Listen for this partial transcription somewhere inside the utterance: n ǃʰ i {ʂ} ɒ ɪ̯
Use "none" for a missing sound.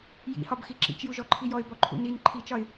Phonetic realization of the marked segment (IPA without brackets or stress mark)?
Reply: t͡ʃ